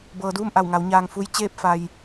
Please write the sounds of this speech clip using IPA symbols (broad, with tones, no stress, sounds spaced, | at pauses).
b ɤː˩˧ d uː˥˨ m ʔ a˧˩ w ŋ a˩˧ w ɲ aː˩ ŋ f u˧ j t͡ɕ eː˥˨ p̚ f a˩ j